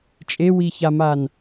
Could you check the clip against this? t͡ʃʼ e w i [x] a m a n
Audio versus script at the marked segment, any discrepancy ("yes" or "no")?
yes